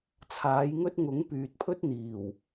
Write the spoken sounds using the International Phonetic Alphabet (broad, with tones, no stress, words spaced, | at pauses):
t͡sʰaː˨˥jŋɵ˥t̚ ŋʊ˨˥ŋpyː˨t̚pʰɵ˥t̚n̪iː˨˩w